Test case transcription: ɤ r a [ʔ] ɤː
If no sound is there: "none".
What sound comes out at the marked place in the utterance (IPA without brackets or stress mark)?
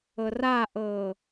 ʔ